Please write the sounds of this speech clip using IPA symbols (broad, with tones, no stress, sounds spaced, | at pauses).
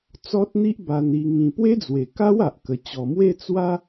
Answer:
t͡s ɔ˦ t̚ n̪ i˦ ʔ b a˧ n i˧ ŋ ĩ˧ p w e˦ d͡z w e˨˩ k a˦ w a˨ ʔ k ə˧ t͡ɕ ɔ˧ m w e˥˧ t͡s w a˦